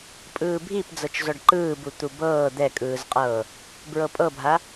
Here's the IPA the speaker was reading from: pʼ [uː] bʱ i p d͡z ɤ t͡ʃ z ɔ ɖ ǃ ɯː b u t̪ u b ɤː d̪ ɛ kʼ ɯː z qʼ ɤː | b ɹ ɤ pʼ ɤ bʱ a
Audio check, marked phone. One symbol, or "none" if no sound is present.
ɯː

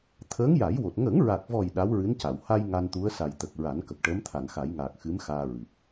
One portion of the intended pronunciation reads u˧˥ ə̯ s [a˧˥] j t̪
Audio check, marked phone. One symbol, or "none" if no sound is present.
a˨˩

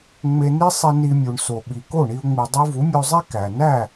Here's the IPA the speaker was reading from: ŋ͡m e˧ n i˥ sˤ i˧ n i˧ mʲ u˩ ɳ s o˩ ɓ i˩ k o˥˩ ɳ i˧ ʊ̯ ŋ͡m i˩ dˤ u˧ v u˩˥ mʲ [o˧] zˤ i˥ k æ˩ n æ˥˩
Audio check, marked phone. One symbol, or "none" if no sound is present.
o˧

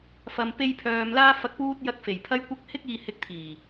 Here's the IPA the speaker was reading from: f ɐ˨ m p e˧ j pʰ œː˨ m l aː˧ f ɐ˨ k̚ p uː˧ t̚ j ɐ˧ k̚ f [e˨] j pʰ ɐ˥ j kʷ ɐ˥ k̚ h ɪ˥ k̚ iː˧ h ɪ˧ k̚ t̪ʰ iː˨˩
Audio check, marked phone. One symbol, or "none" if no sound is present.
e˨˩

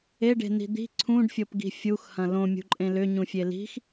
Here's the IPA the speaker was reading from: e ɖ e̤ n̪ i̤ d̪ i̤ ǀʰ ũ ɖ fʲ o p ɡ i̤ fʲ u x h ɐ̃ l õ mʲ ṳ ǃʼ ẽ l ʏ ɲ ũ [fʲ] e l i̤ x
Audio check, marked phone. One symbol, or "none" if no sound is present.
fʲ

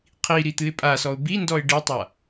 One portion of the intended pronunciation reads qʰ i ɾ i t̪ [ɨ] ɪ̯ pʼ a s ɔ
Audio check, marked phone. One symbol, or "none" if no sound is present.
ɨ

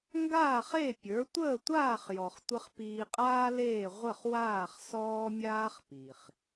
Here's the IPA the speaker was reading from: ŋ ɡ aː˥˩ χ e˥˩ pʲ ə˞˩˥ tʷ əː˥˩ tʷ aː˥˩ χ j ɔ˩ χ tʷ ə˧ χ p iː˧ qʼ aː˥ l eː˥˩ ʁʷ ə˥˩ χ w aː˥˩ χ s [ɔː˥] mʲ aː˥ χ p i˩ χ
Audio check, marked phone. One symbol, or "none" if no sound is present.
ɔː˥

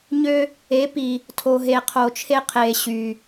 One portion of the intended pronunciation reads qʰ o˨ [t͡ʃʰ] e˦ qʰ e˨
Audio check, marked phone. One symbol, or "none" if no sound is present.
t͡ʃʰ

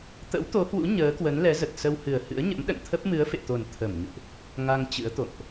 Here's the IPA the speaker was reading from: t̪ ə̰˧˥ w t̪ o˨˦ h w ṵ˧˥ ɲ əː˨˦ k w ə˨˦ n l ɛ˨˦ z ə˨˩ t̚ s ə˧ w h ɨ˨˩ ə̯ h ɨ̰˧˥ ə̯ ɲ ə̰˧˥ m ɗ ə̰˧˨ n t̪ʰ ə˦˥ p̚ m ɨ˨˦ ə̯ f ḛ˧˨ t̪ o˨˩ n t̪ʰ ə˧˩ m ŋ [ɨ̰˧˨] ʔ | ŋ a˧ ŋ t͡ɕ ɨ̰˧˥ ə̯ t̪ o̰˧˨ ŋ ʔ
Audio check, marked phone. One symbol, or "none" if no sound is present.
ɨ̰˧˨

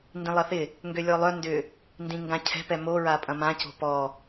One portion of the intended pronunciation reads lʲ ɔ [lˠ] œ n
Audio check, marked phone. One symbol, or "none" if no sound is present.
lˠ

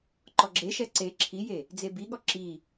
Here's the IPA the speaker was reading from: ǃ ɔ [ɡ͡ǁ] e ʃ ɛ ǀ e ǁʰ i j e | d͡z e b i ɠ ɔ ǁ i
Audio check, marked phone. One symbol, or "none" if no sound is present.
ɡ͡ǁ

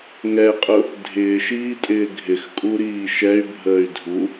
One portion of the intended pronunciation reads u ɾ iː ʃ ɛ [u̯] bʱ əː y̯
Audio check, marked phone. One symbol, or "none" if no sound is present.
y̯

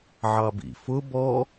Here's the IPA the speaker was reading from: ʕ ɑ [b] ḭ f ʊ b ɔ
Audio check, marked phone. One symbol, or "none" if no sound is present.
b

